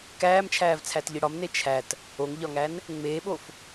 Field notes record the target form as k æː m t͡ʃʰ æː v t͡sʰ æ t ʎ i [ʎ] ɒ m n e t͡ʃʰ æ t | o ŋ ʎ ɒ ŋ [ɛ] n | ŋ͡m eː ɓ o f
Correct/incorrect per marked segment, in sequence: incorrect: ɽ, incorrect: æ

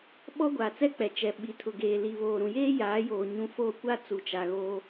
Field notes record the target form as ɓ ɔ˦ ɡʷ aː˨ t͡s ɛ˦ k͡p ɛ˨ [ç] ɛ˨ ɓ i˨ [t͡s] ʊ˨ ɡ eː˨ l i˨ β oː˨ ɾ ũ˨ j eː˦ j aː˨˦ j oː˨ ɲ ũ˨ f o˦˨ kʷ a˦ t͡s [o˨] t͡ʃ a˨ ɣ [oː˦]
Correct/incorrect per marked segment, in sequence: incorrect: t͡ʃ, incorrect: tʰ, incorrect: u˨, correct

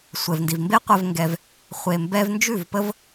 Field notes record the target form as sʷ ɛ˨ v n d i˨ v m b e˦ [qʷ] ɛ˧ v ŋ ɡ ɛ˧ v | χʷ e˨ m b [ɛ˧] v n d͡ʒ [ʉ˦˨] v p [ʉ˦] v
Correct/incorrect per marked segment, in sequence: correct, correct, correct, incorrect: ə˦

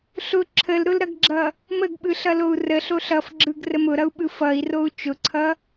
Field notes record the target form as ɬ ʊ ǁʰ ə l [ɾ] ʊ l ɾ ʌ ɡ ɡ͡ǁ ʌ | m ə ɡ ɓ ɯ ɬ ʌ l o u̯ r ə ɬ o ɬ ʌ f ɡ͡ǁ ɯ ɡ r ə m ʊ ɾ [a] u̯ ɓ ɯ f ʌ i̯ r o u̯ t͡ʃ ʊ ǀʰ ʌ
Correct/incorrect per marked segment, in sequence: correct, incorrect: ʌ

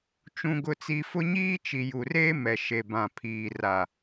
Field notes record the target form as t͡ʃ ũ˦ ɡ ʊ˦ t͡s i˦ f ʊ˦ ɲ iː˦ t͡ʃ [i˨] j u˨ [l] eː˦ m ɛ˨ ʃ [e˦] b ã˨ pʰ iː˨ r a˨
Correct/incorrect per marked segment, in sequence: correct, incorrect: r, incorrect: e˨

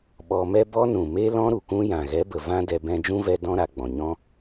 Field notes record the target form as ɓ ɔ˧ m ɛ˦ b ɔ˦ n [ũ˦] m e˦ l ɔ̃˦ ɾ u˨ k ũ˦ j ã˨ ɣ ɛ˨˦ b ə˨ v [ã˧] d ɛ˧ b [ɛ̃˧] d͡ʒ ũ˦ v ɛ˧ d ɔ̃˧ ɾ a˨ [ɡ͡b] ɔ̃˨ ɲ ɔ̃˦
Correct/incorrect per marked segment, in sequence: incorrect: ũ˨, incorrect: ã˦, correct, correct

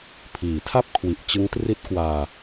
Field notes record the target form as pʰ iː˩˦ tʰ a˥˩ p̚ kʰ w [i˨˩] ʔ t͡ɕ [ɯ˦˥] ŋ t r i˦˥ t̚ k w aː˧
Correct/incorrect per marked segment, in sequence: correct, correct

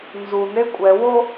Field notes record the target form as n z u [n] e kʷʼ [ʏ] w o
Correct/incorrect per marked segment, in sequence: correct, incorrect: ɛ

